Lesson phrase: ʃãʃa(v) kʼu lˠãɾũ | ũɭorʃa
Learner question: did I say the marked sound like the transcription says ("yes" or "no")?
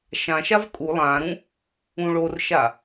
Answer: yes